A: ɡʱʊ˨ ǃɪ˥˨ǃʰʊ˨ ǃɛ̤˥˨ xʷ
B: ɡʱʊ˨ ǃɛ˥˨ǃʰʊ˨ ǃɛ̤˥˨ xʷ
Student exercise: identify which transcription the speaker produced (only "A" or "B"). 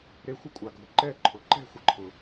B